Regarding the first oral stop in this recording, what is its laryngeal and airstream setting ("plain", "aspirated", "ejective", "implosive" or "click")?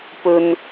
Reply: plain